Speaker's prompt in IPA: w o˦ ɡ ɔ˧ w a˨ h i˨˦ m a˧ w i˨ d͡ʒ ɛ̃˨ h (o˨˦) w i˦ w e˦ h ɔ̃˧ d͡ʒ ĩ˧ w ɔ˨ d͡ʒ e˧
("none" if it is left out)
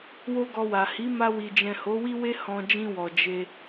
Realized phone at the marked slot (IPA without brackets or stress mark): o˨˦